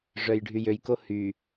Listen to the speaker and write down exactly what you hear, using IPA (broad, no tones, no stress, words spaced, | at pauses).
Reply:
ʐœjɖʱyjøjko hy